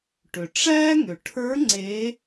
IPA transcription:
ʈ ʏ˩ ʈ͡ʂ æ˥ ŋ ʏ˩˧ ʈʰ ə˞˧˥ ŋ͡ǀ e˧˥

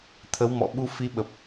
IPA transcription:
t̪ʰ ə˨˦ w m ɔ̰˧˨ ɓ u˧ f i˧ ɓ ə˨˩ p̚

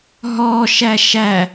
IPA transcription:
ɦ ɔ ʃ æ ʃ æ

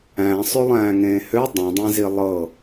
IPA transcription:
æ̃ sˤ ø lˠ æ̃ː ŋ ẽː h ø dˤ ĩ dˤ ẽ z i lˠ ɤ

